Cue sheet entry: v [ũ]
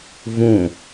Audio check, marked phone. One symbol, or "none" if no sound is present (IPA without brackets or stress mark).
ũ